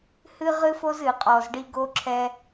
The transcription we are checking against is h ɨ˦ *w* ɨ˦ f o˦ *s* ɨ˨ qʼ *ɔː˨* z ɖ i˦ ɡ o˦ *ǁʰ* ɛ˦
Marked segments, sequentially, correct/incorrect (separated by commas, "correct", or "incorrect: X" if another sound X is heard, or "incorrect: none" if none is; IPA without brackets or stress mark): incorrect: ʁ, incorrect: z, incorrect: ɔ˨, correct